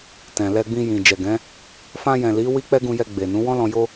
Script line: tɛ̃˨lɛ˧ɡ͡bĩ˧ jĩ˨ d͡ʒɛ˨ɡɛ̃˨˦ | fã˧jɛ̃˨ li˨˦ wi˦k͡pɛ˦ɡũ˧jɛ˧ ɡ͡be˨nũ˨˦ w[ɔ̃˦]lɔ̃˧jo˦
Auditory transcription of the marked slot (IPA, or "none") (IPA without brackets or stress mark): ɔ̃˦